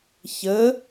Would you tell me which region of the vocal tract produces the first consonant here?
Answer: palate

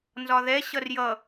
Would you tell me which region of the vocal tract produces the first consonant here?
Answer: tongue tip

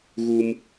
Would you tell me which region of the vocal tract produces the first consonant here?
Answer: velum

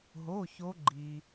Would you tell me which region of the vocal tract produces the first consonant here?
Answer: throat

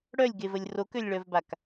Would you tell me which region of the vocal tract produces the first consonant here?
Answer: retroflex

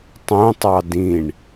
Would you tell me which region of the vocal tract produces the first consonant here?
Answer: tongue tip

